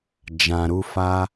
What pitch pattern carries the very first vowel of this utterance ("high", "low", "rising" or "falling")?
low